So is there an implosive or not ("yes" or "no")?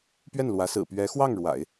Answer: no